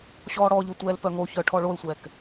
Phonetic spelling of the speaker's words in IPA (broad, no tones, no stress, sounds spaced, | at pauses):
ɕ ɔː ɽ ɔ ʎ o tʷ ɛː l p œ ŋ o ç œ ʈʰ ɔ ɭ o l sʷ ɛː k